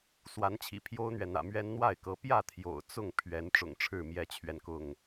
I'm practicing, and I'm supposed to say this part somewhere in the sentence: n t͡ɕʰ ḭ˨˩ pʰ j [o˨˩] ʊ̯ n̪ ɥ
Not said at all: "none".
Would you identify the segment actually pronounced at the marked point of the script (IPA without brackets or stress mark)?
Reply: o˦